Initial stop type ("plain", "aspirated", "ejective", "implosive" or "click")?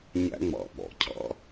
implosive